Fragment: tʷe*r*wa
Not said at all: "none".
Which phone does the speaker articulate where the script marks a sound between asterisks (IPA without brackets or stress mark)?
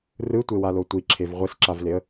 none